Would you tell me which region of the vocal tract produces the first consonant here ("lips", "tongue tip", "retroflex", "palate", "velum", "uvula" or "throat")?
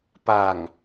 lips